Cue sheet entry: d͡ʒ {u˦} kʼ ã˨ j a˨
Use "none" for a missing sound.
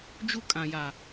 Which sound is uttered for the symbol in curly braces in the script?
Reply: u˦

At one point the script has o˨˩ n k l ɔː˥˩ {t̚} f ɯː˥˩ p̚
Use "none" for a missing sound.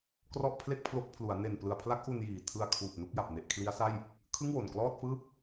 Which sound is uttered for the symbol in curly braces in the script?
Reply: t̚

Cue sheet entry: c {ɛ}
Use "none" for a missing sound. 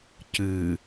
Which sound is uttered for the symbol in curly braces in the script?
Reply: ɨ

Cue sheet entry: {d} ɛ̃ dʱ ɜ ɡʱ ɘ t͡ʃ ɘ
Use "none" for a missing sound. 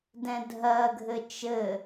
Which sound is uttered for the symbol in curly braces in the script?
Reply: d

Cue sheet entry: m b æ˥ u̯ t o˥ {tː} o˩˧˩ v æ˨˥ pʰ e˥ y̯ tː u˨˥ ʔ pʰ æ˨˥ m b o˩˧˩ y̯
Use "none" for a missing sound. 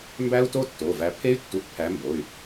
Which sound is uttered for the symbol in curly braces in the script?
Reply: tː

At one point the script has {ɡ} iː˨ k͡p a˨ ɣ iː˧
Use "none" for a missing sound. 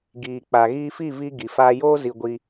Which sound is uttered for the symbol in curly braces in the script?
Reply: ɡ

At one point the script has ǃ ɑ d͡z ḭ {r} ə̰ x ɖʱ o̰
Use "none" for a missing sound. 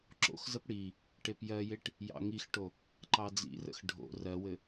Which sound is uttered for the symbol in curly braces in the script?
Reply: r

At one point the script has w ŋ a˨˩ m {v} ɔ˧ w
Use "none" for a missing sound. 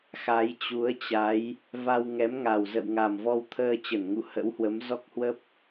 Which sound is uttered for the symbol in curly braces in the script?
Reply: v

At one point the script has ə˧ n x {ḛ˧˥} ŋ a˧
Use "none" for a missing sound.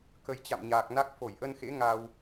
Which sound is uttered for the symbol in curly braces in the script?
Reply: ḛ˧˥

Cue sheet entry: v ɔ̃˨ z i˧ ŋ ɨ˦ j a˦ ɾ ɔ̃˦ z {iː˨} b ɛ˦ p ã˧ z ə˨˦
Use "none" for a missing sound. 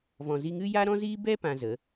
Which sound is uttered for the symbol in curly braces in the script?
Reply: iː˦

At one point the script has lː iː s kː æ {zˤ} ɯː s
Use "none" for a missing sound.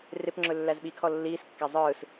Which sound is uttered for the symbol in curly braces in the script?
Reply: zˤ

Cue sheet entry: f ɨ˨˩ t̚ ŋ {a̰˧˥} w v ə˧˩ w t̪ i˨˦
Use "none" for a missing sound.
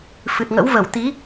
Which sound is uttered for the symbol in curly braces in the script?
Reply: ə̰˧˥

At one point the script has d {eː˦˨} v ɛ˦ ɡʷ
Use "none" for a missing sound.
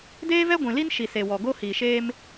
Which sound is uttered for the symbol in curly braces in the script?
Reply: eː˦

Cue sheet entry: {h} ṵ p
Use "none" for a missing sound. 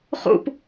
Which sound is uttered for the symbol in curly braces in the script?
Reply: χ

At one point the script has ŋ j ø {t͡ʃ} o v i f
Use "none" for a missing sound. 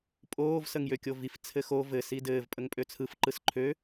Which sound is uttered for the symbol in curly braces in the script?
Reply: kʲ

